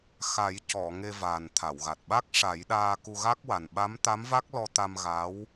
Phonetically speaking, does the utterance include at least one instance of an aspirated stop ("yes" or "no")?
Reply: yes